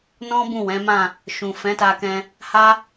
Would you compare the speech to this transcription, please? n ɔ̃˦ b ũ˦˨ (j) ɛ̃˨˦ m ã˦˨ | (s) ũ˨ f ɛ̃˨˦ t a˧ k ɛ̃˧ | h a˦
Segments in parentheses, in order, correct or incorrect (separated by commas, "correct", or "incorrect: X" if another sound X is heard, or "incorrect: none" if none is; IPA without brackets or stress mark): incorrect: w, incorrect: ʃ